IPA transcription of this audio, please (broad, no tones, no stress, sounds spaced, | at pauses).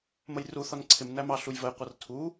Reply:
m ə j r u θ ɒ n ǀʰ ɪ m n æ m ɑ ɬ u j v ə j qʷ ʌ r tʰ u